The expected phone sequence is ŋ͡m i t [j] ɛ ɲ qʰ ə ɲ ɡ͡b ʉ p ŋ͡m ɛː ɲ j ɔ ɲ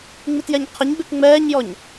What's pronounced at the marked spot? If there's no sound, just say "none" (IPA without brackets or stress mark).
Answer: j